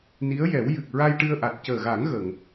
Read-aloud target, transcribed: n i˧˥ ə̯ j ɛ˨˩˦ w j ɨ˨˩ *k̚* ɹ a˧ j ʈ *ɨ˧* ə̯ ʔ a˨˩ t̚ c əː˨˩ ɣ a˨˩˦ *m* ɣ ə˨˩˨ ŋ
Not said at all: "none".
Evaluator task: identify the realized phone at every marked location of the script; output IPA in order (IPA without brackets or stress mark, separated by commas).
k̚, ɨ˧, ŋ